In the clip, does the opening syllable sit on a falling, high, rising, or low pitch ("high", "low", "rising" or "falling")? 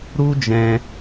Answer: high